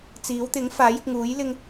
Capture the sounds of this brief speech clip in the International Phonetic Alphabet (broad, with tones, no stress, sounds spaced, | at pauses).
t͡s iː˨˥ w t̪ ɪ˨˥ ŋ f aː˨˥ j ɪ˨ k̚ ŋ uː˨˥ j l ɪ˥ ŋ